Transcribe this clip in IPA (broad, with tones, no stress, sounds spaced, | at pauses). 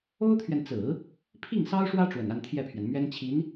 o˥ ʊ̯ t̪ʰ ɥ ɛ˨ n t͡s ɹ̩˨˩˦ | pʰ i˥˩ ŋ s ɑ˥ ʊ̯ ʂ w ä˥ ʈ͡ʂ w ə˨˩ n a˥˧ n t̪ʰ j ɛ˥˩ pʰ ɥ ɛ˩ n m ɥ ɛ˥ n t͡ɕʰ i˧˥ n